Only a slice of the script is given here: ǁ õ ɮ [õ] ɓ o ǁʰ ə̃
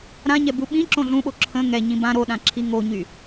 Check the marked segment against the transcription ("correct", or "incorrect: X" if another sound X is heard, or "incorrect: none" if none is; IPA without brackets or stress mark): incorrect: ũ